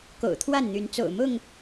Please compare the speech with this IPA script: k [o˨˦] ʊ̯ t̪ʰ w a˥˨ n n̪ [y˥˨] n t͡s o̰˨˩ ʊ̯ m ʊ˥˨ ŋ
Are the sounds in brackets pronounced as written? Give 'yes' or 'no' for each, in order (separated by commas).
no, no